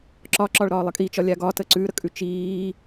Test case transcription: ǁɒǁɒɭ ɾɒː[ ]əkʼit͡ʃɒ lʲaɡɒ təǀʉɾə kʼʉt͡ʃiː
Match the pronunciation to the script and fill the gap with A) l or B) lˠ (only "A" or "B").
B